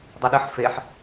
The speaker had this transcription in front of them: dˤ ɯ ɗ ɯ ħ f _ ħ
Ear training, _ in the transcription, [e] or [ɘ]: e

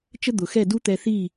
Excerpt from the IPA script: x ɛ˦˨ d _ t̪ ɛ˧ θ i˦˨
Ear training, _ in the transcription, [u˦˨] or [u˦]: u˦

